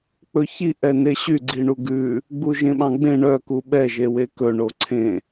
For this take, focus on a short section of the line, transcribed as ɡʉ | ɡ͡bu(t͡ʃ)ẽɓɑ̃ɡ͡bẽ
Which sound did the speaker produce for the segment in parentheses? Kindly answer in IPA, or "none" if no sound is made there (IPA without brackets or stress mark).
ʒ